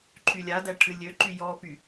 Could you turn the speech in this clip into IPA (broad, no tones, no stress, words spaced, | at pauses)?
ǃʰylʲadæ ʈʰɨlʲøǃy jɔpy